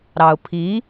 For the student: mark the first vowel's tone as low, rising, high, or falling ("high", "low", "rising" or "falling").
low